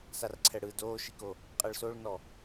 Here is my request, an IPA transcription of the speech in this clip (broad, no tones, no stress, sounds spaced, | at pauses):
s a r ǀʰ ɛ ɽ ɯ d oː ʃ i k o | qʼ ɛ ɭ s o ɭ n ɔ